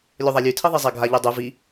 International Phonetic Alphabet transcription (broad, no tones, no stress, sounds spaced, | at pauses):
lʲ o ðˤ a lʲ ʉ tʰ i ðˤ i zˤ a ɡʱ a ʎ i dˤ ʉ v i